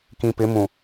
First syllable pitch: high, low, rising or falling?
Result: low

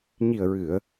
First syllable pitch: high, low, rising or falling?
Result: low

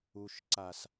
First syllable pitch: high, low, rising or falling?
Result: low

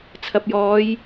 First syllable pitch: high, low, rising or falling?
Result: low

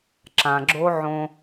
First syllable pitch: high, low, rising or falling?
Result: low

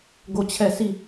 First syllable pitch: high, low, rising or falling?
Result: falling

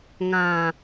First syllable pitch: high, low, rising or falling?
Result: low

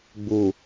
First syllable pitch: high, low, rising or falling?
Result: low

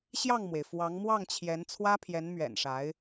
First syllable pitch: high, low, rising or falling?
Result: falling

